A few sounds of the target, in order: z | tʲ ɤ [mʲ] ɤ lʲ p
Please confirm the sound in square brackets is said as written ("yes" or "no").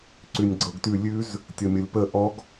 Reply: yes